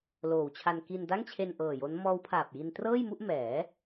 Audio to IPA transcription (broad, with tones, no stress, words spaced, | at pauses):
loː˨˩wt͡ɕʰa˧n ki˧nda˥˩ŋt͡ɕʰe˧n ʔɤː˨˩jo˦˥n mɔː˦˥wpʰaː˨˩p̚ji˧ntrɤː˥˩j mu˥˩ʔmɛː˩˦